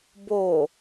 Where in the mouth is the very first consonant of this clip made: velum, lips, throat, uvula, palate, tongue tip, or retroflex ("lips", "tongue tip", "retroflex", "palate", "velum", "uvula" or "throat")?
lips